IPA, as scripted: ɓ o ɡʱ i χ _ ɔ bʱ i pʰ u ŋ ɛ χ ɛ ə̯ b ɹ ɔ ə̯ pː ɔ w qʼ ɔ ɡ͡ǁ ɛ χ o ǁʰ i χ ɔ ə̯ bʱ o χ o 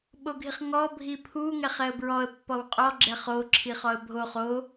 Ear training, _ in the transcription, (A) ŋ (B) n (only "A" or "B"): A